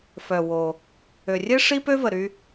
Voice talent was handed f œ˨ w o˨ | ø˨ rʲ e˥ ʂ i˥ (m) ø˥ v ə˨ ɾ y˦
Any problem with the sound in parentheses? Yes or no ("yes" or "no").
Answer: yes